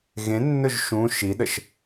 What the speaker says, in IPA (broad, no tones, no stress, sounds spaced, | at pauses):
ɣ ẽ nː ɵ ʒ ʃ ũ ʃ i ɗ ə ʃ